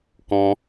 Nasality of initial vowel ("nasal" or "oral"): nasal